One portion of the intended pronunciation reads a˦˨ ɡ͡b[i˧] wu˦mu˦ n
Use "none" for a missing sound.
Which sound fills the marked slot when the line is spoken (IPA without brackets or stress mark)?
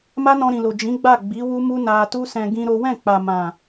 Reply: i˨˦